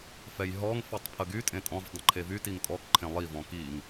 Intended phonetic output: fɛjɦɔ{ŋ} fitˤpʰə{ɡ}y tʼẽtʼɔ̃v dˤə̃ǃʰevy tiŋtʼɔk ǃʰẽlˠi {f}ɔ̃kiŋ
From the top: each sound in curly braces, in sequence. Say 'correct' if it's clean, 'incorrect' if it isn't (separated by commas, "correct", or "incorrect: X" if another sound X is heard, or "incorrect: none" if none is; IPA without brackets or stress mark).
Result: correct, correct, incorrect: v